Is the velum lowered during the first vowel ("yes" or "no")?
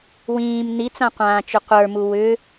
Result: yes